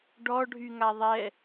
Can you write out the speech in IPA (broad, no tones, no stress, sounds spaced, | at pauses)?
ɖ ɔ ɖʱ y ŋ a ðˤ ɛ